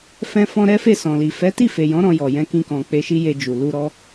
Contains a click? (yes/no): no